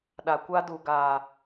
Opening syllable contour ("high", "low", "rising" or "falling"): low